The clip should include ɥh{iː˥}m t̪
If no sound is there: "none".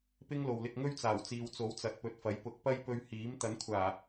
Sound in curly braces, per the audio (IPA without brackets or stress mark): iː˨˥